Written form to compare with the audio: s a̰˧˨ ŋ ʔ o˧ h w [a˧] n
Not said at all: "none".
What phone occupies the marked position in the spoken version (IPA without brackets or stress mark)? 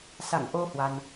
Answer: a˧